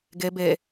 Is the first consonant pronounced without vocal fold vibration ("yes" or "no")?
no